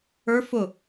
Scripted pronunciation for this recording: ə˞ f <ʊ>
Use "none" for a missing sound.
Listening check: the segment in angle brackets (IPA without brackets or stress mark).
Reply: ʊ